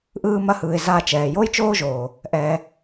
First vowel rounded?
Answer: no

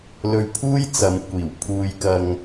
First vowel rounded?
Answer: yes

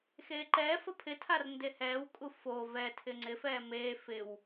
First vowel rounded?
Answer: no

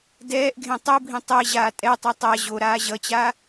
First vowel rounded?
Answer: no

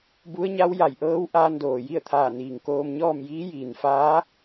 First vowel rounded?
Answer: yes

